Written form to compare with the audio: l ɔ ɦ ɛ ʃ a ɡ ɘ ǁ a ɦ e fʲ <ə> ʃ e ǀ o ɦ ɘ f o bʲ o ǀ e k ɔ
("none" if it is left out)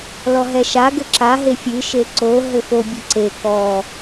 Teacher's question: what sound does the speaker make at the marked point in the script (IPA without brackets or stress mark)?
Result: ɨ